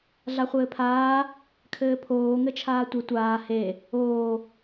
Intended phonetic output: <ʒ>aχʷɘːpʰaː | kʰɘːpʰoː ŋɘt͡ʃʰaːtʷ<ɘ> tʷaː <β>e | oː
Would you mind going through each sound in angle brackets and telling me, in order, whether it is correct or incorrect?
incorrect: ɮ, correct, incorrect: h

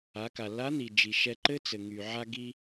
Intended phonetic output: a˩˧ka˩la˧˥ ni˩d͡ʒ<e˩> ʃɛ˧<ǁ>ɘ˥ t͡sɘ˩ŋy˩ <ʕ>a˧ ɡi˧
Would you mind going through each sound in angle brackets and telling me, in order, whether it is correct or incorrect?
incorrect: i˩, incorrect: ǃ, correct

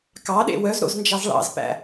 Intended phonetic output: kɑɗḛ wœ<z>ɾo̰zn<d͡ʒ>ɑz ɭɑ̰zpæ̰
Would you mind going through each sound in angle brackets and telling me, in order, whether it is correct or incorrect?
correct, correct

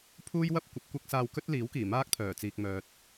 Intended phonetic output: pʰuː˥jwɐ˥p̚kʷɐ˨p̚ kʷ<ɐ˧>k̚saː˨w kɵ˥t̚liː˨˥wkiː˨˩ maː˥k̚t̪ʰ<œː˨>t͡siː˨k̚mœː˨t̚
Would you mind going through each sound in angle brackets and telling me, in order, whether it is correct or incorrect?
correct, incorrect: œː˨˩

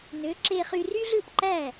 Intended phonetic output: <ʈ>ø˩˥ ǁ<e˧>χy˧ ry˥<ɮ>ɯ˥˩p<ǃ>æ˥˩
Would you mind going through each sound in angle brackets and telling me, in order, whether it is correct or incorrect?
incorrect: n, correct, correct, correct

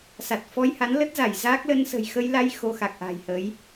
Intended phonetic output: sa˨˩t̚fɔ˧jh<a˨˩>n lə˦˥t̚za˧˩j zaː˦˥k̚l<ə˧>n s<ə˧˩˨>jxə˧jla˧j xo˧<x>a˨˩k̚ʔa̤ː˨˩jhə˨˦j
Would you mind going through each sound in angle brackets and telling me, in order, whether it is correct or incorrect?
incorrect: a˨˦, correct, incorrect: ə̤˨˩, correct

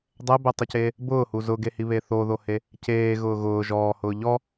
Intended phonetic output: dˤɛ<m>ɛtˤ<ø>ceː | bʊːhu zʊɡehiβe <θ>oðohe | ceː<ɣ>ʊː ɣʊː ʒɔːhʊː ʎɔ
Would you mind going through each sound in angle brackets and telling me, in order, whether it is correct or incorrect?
incorrect: b, incorrect: u, correct, correct

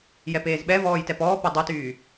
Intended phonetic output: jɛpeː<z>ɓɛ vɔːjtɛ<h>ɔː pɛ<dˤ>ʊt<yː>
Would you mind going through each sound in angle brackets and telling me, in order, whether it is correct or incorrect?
correct, incorrect: p, correct, correct

